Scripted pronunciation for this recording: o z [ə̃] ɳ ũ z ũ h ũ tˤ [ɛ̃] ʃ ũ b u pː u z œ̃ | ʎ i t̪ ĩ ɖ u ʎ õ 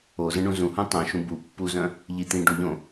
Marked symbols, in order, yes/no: yes, no

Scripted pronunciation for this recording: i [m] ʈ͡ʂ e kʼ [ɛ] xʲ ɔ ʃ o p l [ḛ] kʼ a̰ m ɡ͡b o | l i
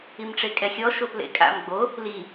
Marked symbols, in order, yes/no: yes, yes, yes

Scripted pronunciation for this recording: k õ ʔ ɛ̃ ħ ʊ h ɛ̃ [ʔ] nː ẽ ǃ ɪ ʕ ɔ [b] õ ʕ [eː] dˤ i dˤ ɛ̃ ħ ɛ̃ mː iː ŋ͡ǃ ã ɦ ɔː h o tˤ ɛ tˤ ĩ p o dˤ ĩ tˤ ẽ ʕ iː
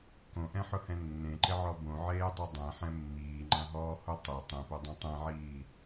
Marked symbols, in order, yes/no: no, yes, yes

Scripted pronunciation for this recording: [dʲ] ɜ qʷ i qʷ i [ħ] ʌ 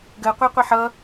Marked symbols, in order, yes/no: no, yes

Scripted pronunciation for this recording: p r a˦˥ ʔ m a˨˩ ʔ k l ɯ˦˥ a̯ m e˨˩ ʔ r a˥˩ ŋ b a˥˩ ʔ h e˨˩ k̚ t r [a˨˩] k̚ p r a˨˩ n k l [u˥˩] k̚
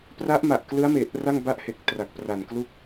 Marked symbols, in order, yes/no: yes, yes

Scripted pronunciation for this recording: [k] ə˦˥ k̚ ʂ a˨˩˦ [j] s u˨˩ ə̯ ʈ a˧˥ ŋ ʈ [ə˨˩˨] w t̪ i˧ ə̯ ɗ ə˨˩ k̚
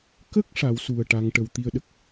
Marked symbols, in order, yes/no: yes, no, no

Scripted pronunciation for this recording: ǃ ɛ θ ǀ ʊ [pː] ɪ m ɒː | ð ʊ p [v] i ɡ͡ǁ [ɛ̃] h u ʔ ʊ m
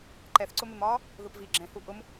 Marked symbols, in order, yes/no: no, yes, yes

